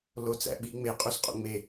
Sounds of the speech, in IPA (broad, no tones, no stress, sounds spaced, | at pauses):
l o t͡s æ̰ ɓ i ŋ͡m e qʼ u s qʼ o̰ ŋ͡m e